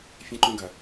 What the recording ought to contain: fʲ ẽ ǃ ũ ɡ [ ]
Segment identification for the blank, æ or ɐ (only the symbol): ɐ